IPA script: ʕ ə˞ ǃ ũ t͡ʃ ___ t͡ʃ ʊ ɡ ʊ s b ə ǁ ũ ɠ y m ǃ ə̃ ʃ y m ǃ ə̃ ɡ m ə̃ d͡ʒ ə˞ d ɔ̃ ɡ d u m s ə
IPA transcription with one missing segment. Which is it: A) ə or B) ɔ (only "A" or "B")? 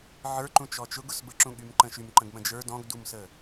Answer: B